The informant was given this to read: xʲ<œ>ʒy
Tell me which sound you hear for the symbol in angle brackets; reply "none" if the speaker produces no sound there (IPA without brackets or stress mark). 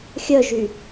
œ